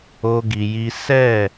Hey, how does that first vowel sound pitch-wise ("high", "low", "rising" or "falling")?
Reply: high